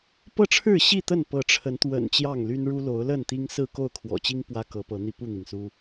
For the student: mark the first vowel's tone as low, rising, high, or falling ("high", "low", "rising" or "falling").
falling